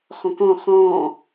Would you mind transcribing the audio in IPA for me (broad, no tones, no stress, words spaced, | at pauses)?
χɔ̃kɔ̃ χɔ̃ː